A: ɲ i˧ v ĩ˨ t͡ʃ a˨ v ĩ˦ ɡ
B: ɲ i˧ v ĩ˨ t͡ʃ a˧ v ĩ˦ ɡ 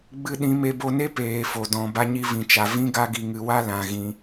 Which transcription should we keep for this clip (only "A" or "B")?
A